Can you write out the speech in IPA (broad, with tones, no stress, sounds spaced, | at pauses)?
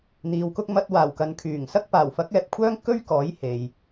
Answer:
n̪ iː˨ w k ʊ˧ k̚ m ɐ˧ t̚ w aː˨˩ w k ɐ˨ n kʰ yː˨˩ ŋ s ɐ˧ k̚ p aː˨˩ w f ɐ˨˥ k̚ ɛː˧ p̚ kʷʰ œː˥ ŋ k ɵ˥ ɥ k ɔː˨˥ j h e˨ j